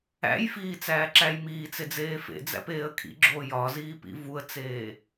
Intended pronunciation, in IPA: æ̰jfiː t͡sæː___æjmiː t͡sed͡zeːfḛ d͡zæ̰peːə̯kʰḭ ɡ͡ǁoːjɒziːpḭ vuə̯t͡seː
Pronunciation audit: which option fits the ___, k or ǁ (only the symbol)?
ǁ